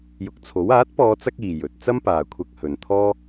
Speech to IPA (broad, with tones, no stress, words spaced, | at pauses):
jʊ˨k̚t͡sʰo˨˥w aː˨˥t̚pɔː˨˧t͡sɐ˧k̚ iː˨jɵ˨˥t̚ t͡sɐ˥mpaː˨kʷʰɐ˧k̚ hɵ˨n t̪ʰɔː˥